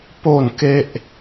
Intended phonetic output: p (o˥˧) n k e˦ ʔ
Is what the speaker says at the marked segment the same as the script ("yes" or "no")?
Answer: yes